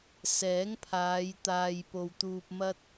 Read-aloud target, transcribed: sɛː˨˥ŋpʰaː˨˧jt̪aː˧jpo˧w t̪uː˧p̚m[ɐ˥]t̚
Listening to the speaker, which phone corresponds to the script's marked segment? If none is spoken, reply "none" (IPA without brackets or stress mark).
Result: ɐ˥